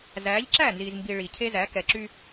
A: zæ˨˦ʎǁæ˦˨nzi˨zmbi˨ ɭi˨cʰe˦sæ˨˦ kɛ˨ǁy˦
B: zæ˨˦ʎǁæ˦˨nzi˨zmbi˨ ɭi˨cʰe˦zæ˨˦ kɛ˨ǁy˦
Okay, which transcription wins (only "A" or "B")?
B